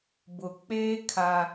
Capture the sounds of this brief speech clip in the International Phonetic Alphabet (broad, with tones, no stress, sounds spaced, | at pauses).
b ʊ˨ k͡p eː˦ kʰ a˦